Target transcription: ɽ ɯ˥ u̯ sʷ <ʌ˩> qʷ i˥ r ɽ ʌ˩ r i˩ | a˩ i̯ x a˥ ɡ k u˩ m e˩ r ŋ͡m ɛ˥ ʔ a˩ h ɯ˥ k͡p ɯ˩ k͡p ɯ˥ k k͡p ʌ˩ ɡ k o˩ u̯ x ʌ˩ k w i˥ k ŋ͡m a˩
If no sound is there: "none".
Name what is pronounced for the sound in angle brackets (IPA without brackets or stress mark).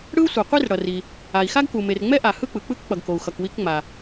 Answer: ʌ˩